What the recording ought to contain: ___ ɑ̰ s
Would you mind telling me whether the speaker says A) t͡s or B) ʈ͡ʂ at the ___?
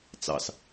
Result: A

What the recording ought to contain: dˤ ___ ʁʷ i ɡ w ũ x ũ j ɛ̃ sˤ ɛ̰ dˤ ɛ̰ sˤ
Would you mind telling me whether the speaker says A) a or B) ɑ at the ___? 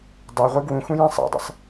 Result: A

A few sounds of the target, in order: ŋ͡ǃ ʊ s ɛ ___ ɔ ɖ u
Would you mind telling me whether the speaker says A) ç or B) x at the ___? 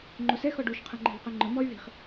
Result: B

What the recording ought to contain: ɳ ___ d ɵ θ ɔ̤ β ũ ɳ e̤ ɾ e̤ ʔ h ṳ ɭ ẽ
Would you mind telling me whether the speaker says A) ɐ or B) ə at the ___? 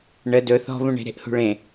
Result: B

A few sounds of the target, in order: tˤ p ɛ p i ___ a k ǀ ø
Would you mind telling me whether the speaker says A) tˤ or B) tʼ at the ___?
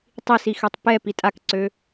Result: B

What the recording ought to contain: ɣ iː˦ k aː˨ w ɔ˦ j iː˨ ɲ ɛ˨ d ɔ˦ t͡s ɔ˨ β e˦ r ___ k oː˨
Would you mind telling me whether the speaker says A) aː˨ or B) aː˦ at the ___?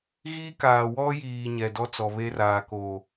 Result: A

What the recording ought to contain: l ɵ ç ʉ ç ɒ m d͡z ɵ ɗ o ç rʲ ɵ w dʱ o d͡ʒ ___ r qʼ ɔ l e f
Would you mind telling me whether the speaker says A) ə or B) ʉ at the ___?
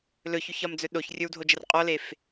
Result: A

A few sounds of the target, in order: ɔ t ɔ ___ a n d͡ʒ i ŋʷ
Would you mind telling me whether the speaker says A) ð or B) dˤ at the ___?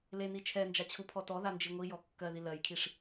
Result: A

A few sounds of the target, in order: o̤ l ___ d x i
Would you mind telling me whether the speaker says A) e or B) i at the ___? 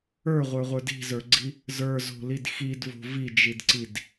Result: B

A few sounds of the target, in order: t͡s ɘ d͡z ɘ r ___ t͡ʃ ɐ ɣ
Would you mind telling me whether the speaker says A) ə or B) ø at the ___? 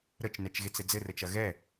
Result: A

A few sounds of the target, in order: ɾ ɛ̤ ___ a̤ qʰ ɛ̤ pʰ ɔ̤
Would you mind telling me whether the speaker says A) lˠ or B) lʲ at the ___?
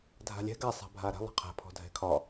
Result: A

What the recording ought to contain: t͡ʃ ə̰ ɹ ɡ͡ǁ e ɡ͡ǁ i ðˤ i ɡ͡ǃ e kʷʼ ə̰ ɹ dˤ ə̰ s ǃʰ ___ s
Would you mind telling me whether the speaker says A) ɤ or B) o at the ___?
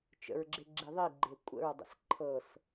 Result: A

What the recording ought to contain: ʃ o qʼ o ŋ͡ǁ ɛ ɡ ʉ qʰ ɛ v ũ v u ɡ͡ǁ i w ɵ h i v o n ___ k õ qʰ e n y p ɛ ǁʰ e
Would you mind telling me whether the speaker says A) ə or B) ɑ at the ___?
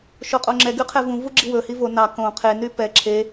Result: B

